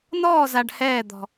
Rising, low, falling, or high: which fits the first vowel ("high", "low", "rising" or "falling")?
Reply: falling